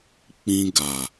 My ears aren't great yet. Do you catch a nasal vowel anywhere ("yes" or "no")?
yes